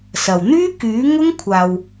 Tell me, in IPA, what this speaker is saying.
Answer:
s ɐ˨ w n̪ yː˥ k yː˨˥ ŋ ʊ˥ ŋ kʷʰ aː˧ w

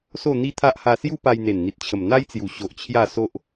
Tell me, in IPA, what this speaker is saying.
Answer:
s o˥˧ n̪ i˦ t̪ʰ a˦ ʔ h a˧ s j u˦ p a˧ j n̪ e˨˩ n n̪ i˨ t̚ t͡ɕʰ ə˨˩ m n̪ a˦ j t͡s j u˨˩ ɕ o˨ ʔ t͡ɕʰ j a˥˧ s o˦ ʔ

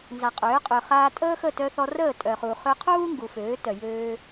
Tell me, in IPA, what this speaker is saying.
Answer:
n z a˨ qʼ øː˨˦ qʼ ø˨ χ aː˧ tʼ əː˦ x ə˦˨ t œ˧ θ ɔ˧ r əː˦˨ tʼ œ˨ χ uː˨ χ ø˧ qʰ uː˦ ŋ ɡ u˨ f øː˨˦ t œ˨ j øː˧

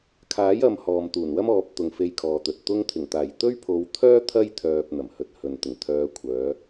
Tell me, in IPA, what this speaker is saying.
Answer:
kʰ aː˨˥ j ɐ˨ m h ɔː˨ m t̪ uː˨˩ n w ɐ˥ m ɔː˨˥ p̚ t̪ ʊ˨ ŋ f e˧ j kʰ ɔː˨ t̪ ɵ˨ t̚ t̪ ʊ˧ ŋ t̪ʰ ɪ˨˩ ŋ t̪ aː˨˩ j t̪ ɵ˥ ɥ pʰ o˨˧ w t̪ʰ œː˥ t̪ʰ ɐ˥ j t̪ʰ œː˨ p̚ n̪ ɐ˨˩ m h ɵ˧ t̚ h ɵ˨ n t̪ ɪ˨˩ ŋ t̪ʰ œː˨˧ kʷʰ œː˨˧

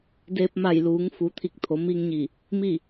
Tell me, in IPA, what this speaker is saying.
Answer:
d eː˧ p̚ m a˧˩ j l uː˩˧ ŋ f u˩˧ t̪ʰ i˧˩ k̚ t̪ʰ o˩˧ m i˧ ŋ ɲ i˧˩ | m i˥˨

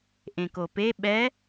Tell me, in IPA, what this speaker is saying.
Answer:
ʔ ẽ k o p e ɓ ɛ

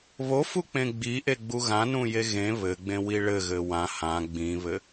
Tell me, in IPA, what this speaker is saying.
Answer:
β o f u k͡p ẽ ɡ͡b i ʔ e ɡ͡b u ɣ ã n ũ j e ɣ ẽ β ɘ ɡ͡b ẽ w i ɭ ɘ ɣ ɘ w ã h ã ɡ͡b ĩ β ɘ

